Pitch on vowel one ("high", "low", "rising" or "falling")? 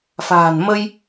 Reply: low